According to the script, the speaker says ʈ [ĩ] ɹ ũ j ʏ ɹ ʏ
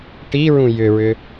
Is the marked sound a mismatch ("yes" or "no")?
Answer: yes